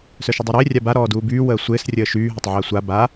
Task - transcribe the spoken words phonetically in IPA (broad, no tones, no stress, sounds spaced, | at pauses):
s œ ʃ ʊ dˤ u ɾ ɪː rʲ a b a ɾ ɔː d uː b yː w əː sʷ ɪː s rʲ əː ʃ yː ɦ ɐ tˤ ʕ əː sʷ a b a